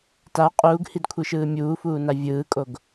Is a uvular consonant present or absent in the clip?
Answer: present